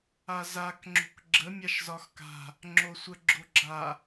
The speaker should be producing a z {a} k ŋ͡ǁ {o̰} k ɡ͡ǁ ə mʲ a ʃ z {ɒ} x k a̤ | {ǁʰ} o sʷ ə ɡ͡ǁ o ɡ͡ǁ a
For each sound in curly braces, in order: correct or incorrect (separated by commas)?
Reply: correct, incorrect, correct, incorrect